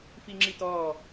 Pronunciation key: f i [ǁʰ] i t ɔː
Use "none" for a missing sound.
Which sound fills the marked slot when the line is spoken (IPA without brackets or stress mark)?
ŋ͡ǁ